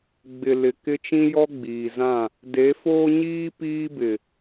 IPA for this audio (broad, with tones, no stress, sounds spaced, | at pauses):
ɡ͡b ɪ˨ l ɪ˨ k ɪ˦ t͡ʃ ĩ˦ j ɔ˦ ɡ͡b iː˨ z ã˦˨ | d e˨˦ f oː˦ ɲ iː˦ p iː˦ b ɪ˨